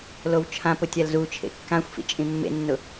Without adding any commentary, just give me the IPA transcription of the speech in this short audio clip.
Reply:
l o w t͡ʃʰ ã p ʊ tʲ a l z u t͡ʃʰ ḛ kː ã xʷ f ḭ t͡ʃʼ ĩ mː ḛ nː ʊ

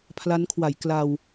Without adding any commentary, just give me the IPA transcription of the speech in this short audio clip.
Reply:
pʰ l a˦˥ n kʰ w a˩˦ j k l a˧ w

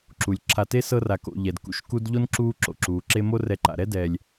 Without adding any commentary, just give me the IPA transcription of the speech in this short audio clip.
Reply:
ǁ u˩ lʲ ǁʰ a˨ t e˥ s ɤ˦ r a˨ k o̰˨ ʎ ɛ˩ d k ṵ˨ ʃ k u˥ d ʎ o˥ n ǁ uː˦ ǁ o̰˩ ǁ uː˩ ǁ e˦ m o˥ r ɛ˨ ǃ a̰˩ ɾ ɛ˥ d ɛ˨ lʲ

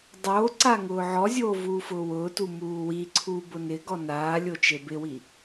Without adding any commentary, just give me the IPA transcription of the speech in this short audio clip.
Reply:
dˤ oː ǀ a ŋ ʊː ʕ ɔ zʲ oː v uː f ʊː w ʊː t u m uː w i ǀʰ uː b ʊ n ɪ ɡ ɔ n aː lʲ o t͡ʃ e b ɪ w i

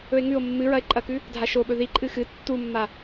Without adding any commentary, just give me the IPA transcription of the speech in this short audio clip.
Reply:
ɵ e̯ ŋ ʉ o̯ mː ɨ ɹ ɐ e̯ ǃʼ ɐ k ʉ | dʱ a ʃ o ɓ ɵ ð i ǃʼ ɨ x ɨ tː u mː a

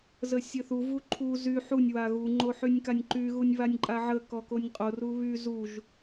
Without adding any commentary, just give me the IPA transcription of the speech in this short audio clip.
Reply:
z ə sʲ ə θ u v u ǃʰ u z y ħ u nʲ w a ɣ u ŋ͡ǃ o ħ y nʲ k a nʲ ǃ y ɣ u nʲ β a nʲ ǃʼ a ʕ ə k ɔ k o nʲ qʼ o r u β y z u ʒ

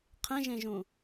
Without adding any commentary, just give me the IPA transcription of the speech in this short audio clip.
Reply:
qʰ ẽ ʒ ẽ ʒ ũ

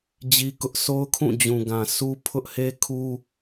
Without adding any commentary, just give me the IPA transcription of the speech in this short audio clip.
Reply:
d͡ʑ i˦ k ʊ˦ ʔ s o˦ ʊ̯ kʰ ũ˦˨ d͡ʑ ũ˨ ɡ ã˨ sʰ u˦ pʰ ʊ˦ ʔ h e˦ kʰ u˦

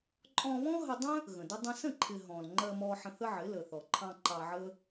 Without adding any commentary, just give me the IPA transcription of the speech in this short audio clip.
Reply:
ǃʼ ɔ̃˧ β ɔ̃˦ ɦ ə˧ dˤ ə̃˦ | ɣ ə̃˨ d ʊ˦ dˤ ə̃˦ s ə̃˦˨ ǃʰ ɪ˨ ɦ ɔ̃˨ l ŋ͡ǃ ɜ˧ m ɔ˧ ħ ə̃˧ θ ə˦ ʕ ɪ˨˦ l ə˨ θ ɔ˨ ǃʰ ɑ̃˧ ǃ ɑ˧ ʕ ə˦

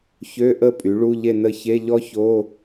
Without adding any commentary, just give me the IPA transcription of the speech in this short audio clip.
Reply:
ç ø˧˥˧ ʔ ə˥˨ pʼ y˩˥ ɭ u˧˥˧ ʎ e˥˨ n ə˥˨ ç e˧˥˧ ʎ ɔ˥ ç o˧˥˧

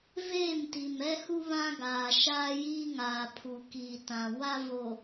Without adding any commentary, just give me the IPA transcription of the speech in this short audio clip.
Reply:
v eː˦˨ m t i˨ m ɛ˦ h u˦ β ã˦ ɡ aː˨ ʃ aː˦ j iː˦ ŋ aː˨ pʰ u˨ k iː˨ t ã˨ w a˦ v o˨

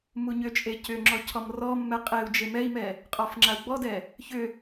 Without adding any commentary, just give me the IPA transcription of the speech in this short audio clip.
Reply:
m u ɲ ʏ t͡ʃʼ e c ʏ ŋ͡ǁ ɔ cʰ ɔ m r ɔ mː ɛ qʼ e u̯ d͡ʒ e m ɛ i̯ m ɛ | qʼ ɔ f ŋ͡ǁ a u̯ ɡ͡b ɔ d ɛ | ç ʏ

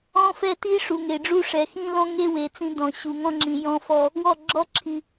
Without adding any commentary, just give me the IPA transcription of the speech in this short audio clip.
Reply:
ɔ̃˦ f ɛ˦ t i˦ ʂ u˨ ŋ e˨ ɖ͡ʐ u˦ ʂ ɛ˨ x ĩ˦ l ɔ̃˦ ŋ e˦ w e˨ t͡s ĩ˦ d ɔ̃˨ ɕ u˨ ŋ ɔ̃˦ ŋ͡ǁ ĩ˨ j ɔ̃˦ f ɔ˦ | w ɔ˦˨ ɡ͡ǁ ɔ˦ ǁʰ i˨

